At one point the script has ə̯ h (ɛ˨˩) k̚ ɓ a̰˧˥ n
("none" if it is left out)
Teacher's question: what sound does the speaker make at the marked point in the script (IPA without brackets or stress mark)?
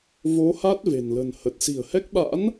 ɛ˦˥